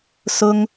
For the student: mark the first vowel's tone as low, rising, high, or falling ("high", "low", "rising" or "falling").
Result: high